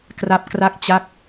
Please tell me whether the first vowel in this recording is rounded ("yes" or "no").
no